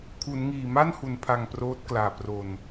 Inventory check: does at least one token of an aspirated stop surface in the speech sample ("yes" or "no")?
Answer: yes